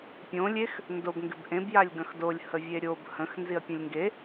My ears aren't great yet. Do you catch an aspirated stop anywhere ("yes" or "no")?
no